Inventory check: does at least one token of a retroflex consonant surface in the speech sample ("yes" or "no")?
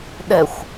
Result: no